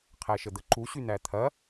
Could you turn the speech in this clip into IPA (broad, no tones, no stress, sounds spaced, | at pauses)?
qʰ æ ʃ ə d̪ ə ǃ u ɕ y n̪ æ t̪ʰ ɐ